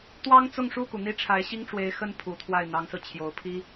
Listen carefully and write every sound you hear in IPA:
t̪wɑ˥ŋt͡sʊ˥˧ŋʂu˥˩ku˩ n̪i˥ʈ͡ʂʰa˧˥ɪ̯ɕi˥ŋʈ͡ʂwe˧˥ɪ̯ xə˥˩n pʰu˨˩t̪ʰwa˥˩ɪ̯n̪ɑ˧˥ŋsɹ̩˧ t͡ɕʰjo˨˩ʊ̯pʰi˥

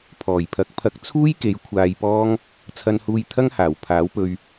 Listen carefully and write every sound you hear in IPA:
pʰɔː˨˩jpʰɐ˨˥k̚pʰɐ˧k̚ t͡sʰuː˥jke˨˧j kʷʰaː˧jpɔː˥ŋ | t͡sʰɐ˧nhuː˧jt̪ʰɐ˥ŋhaː˨˩w pʰaː˨˥wpɵ˧ɥ

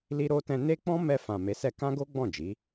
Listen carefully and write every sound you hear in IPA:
li˦ɾo˦tɛ̃˦ ne˦k͡pɔ̃˦ mɛ˧fã˨ me˨˦sɛ˧kã˦ɡo˦ ɡ͡bɔ̃˦˨d͡ʒi˨˦

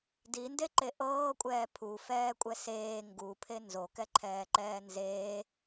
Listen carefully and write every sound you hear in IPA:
dindeǃe ʔɤːkʷʼɛː pʰufɛːkʷʼɛ seː ŋɡupʰe nzokɛǃʰɛːǃɛː nzeː

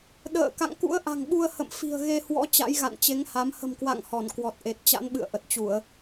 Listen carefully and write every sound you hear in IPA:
ɗə̰ː˧˨ ka̰˧˨ŋkṵ˧˥ə̯ʔa̤˨˩ŋɓu˧ə̯ hə̰˧˨mfi̤˨˩ə̯ɣe˧ hwɔ̰˧˥ t͡ɕa̰˧˥jɣa̰˧˨nt͡ɕe˨˦ŋha˨˦m hə̤˨˩mkwa̰˧˨ŋ hɔ˧˩nkwɔ˨˩t̚ʔe˨˩t̚ t͡ɕa̰˧˥nɓɨ̰˧˨ə̯ʔə˨˩t̚t͡ɕu˧˩˨ə̯

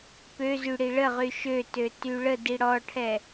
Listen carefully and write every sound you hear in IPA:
pøzy ɽiɭəʁy ʃøtø tyɭədi ɽɔʈʰɛ

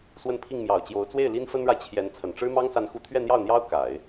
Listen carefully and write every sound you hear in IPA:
swə˥˧npʰi˥˩ŋmjɑ˨˩ʊ̯t͡ɕjo˧˥ʊ̯ t͡swe˥˩ɪ̯ li˥nfə˥nɻa˨ɪ̯ t͡ɕʰjɛ˧˥n t͡sʰə˨˩nʈ͡ʂɻ̩˥mɑ˥ŋ sa˧˥nxu˧˥t̪ʰɥɛ˥˧n̪jɑ˥˩ʊ̯ n̪jɑ˥ʊ̯ ka˨˩˦ɪ̯

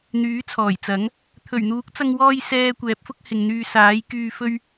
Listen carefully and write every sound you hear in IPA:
n̪yː˨˥t͡sʰɔː˨˩jt͡sɐ˨˥ŋ | t̪ʰɵ˨˩ɥn̪uː˨˥k̚t͡sɐ˧ŋwɔː˧j sɛː˨ kʷɛː˨˥p̚fʊ˥k̚ hɪ˨ŋn̪yː˧ saː˨˥jkyː˧fɵ˥ɥ

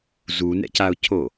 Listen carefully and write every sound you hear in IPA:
zunɛ̰caʊ̯cʰo

